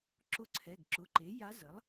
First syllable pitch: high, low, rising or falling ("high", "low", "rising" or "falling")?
rising